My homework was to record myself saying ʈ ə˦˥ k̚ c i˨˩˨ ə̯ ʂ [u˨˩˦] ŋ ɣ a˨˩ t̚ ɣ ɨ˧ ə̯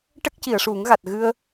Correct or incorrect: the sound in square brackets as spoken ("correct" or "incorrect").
correct